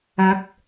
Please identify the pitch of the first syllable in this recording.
rising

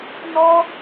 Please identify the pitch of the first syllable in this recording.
high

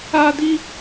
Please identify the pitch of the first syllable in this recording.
high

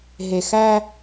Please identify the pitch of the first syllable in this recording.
low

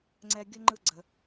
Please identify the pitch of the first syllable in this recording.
high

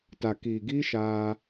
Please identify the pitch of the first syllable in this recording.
low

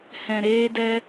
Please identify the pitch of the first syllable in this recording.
low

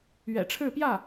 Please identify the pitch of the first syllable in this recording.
low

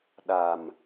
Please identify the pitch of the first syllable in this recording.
low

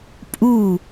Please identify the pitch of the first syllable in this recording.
falling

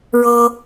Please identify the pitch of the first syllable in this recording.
high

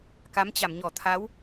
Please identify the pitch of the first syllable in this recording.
rising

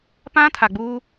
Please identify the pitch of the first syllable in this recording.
high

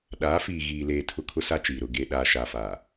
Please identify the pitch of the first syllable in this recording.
rising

